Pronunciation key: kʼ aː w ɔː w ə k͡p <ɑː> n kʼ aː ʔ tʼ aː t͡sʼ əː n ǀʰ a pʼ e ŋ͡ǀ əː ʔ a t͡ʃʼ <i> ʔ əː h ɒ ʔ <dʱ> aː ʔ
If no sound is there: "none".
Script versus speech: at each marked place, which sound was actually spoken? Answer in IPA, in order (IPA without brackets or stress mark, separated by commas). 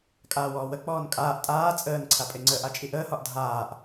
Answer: ɔː, i, dʱ